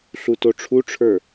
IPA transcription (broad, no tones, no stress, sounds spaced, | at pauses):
ɬ u t o ʈ͡ʂʰ u ʈ͡ʂʰ ə˞